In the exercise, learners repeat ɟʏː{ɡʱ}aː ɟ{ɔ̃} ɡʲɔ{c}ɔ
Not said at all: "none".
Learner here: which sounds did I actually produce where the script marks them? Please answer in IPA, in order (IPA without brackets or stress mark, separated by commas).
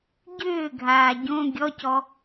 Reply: ɡʱ, õ, c